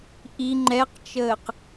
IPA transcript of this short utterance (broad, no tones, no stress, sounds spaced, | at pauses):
ʔ i ŋ͡ǃ ɛ q t͡ʃ əː q